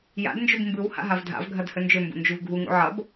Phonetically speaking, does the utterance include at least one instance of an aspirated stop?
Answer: no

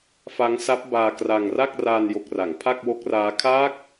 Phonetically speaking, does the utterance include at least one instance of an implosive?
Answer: no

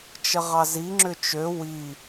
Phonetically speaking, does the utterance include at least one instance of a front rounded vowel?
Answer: yes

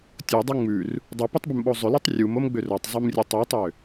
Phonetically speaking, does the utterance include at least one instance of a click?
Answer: no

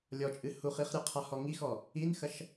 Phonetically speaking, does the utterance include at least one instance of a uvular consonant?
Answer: yes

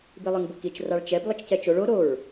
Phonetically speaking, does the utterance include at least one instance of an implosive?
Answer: no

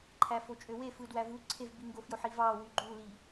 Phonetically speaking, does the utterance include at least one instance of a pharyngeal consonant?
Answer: yes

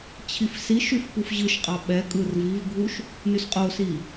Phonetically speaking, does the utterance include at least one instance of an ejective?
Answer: yes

